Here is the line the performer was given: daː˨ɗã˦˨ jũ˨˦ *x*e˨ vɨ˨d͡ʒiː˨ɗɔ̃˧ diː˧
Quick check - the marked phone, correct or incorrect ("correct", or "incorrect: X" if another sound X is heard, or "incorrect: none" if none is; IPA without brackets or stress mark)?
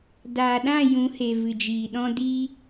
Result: incorrect: h